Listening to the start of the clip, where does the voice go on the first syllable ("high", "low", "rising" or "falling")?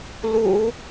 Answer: low